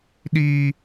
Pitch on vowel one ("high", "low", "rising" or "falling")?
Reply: high